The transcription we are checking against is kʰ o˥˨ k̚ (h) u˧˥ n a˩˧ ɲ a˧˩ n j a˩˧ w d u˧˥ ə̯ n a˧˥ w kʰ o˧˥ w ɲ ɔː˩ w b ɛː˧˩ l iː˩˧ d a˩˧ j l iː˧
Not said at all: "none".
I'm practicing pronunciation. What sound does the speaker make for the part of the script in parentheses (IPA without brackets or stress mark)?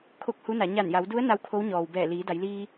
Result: h